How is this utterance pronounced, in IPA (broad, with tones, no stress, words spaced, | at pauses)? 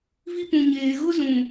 vi˦pũ˨ɲeː˨ ɣʊ˦zũ˨